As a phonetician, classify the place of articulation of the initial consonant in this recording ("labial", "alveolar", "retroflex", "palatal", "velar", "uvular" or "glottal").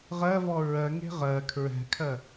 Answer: uvular